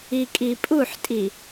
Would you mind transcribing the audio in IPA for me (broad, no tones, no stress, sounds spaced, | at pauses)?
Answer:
i kʼ i pʼ u ħ tʼ i